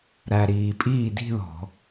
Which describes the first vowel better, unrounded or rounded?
unrounded